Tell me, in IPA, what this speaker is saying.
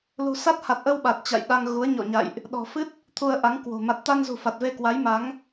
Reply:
l ṳ˨˩ s a˦˥ t̚ h a˨˩ t̚ ʔ ə˧ w ɓ a˨˩ t̚ t͡ɕ a̰˧˨ j ɗ a˧ ŋ ɣ u˨˦ ə̯ ɲ ɔ̰˧˨ ɲ a̰˧˨ j ʔ | ɗ ɔ̤˨˩ f ɨ˦˥ t̚ | t̪ʰ u˧ ə̯ ʔ a˨˦ ŋ k w o̤˨˩ m a˨˩ t̚ t̪ a˧ n z ṳ˨˩ f a˨˩ t̚ v e˧ k w a˨˦ j m a˨˦ ŋ

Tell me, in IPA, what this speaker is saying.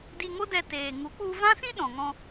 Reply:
d i˧ ŋ o˦ d ɛ˧ t eː˨ ŋ u˨˦ k͡p u˧ v ã˦ s ĩ˦ ɗ ɔ̃˨ ŋ ɔ̃˧

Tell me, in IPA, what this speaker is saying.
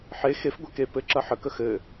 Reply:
ħ e x e f ɡʷ ɛ k e p ɘ ǁ ɐ ħ ə k ə x ɘ

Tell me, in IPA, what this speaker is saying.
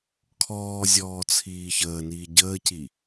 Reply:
kʰ ɔː zʲ ɔː t͡sʰ iː ç əː n iː ɟ əː c i

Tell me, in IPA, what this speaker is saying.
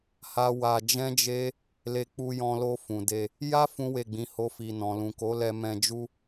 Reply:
h a˦ w a˧ d͡ʒ ɛ̃˦ d͡ʒ e˦ | l e˧ k͡p u˧ j ɔ̃˧ l o˧ f ũ˨ d e˧ | j a˦ f ũ˦ w e˦˨ ɡ͡b ĩ˨˦ h o˦ f i˧ n ɔ̃˨ l ũ˨ k o˨˦ l ɛ˧ m ɛ̃˧ d͡ʒ u˦

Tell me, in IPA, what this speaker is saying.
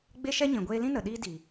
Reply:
ɡ͡b e˦ ʃ ɛ˦ ɲ ĩ˨ ɡʷ eː˧ l ĩ˦ n ə˨ ɗ iː˦ d i˨

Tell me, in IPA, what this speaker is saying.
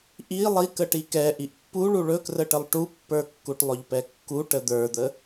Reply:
ʔ i lˠ i k ə ʈ i k ɛ ʔ i ʔ pː u ɭ u ɭ ɵ k r ə ʈ ə lˠ ʈ u pː ə˞ kː u ʈ lˠ ɵ ʎ p ɛ kː u ʈ ə d̪ ə˞ d̪ ə

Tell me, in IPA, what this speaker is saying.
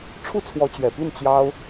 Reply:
ʈ͡ʂʰ u˥˩ t͡sʰ w ɔ˧˥ t͡ɕ ɥ ɛ˨˩ p i˥˩ n t͡ɕ j ɑ˥ ʊ̯

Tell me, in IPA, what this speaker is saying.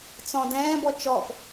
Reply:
t͡s ɔ̃ d ɛ̃ː b ɔ t͡ʃ ɔ p

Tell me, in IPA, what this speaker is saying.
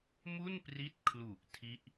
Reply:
m u˥˩ n p r i˦˥ t̚ kʰ l u˨˩ ʔ tʰ i˥˩ ʔ

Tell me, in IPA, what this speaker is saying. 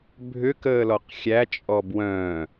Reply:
bʱ ʏ k əː l ɔ q xʲ æ t͡ʃʼ ɔ b w œ̃

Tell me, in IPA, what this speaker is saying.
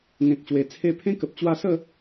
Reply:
ŋ ẽ˨ k̚ ɕ w e˨˩ t͡sʰ e˧ pʰ ẽ˦ k ə˨ p̚ t͡ɕ w a˧ s ə˥˧

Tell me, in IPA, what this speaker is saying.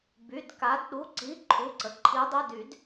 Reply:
b y˩˧˩ d k a˩˧ d ɗ u˩˧˩ ǀ i˩˧˩ ǃʰ u˩˧˩ ǀ ə˩˧ ǃʰ i˩˧ dˤ ɨ˩˧˩ d y˧˩˧ d

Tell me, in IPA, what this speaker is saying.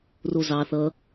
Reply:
r o z ɑ θ ʌ

